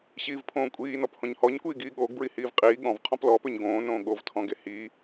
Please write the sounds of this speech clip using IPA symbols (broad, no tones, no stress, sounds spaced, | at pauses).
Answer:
ɕ iː v pʰ õː kʷʼ iː n ɔ p h õ ɲ h ɔ ɲ kʷ iː ɡ iː ɠ oː ɡ b ɹ i h iː v qʼ iː ɠ ɔ̃ v qʰ ɔ̃ p l ɔː p ʏ ɲ ɡ õː n õː ɠ o v tʰ ɔ̃ ɡ e h i